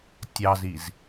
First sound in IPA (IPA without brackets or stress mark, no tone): tʲ